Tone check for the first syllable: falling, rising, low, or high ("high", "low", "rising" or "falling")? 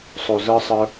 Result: low